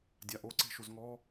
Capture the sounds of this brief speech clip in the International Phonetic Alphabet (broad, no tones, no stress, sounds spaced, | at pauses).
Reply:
dʲ a ʔ o ǀ e̤ ʃ u z ŋ ɔ